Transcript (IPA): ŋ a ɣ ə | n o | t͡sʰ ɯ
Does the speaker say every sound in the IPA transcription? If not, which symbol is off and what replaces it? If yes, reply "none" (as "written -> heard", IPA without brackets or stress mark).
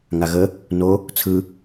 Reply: none